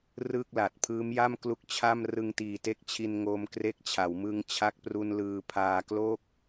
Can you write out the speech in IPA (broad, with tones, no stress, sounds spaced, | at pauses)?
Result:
r ɯː˥˩ k̚ l a˨˩ t̚ pʰ ɯː˦˥ m j a˥˩ m k l u˦˥ k̚ t͡ɕʰ a˥˩ m r ɯ˧ ŋ t iː˨˩ t e˦˥ k̚ t͡ɕʰ i˧ n ŋ oː˧ m k r e˦˥ k̚ t͡ɕʰ a˩˦ w m ɯ˧ ŋ t͡ɕʰ a˦˥ k̚ p r u˧ n l ɯː˧ pʰ aː˧ k l o˥˩ k̚